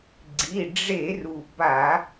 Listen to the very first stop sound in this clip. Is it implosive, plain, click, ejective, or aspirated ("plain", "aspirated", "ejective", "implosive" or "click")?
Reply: click